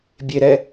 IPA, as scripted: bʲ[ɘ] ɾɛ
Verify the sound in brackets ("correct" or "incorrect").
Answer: incorrect